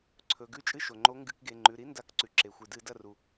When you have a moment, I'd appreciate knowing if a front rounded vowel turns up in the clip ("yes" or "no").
no